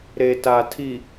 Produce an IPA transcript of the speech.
ɾ e˨ t a˨ tʰ i˨

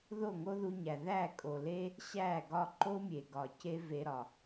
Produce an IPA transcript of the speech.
ð o˦˨ ŋ o˦ ð u˧ ɲ æ˨ ð æ˦˨ kʼ o˨ l e˦ | ɕ æ˦˨ ɡ ɒ˦ ǃ o˦ mʲ e˨ ɡ ɒ˨ c e˦ v e˧ ɾ ɒ˨

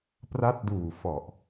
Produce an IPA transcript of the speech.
p r a˦˥ t̚ d uː˨˩ f ɔ˨˩ ʔ

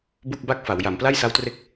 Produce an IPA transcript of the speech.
b u˥˩ k̚ b a˥˩ k̚ f a˩˦ w j a˩˦ m p l a˥˩ j s a˦˥ w t r e˦˥ k̚

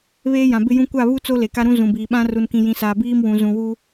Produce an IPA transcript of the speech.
β eː˦ j ã˨ b ɪ˦ j ũ˦ kʷ a˦˨ β u˦ t͡s o˦ l e˨ k a˦ ɾ ũ˦ z ũ˨ b iː˨ ɓ ã˦ r u˨ n k ĩ˨ j ĩ˨ s aː˨ b iː˦ m w ũ˨ z ũ˨ w u˦

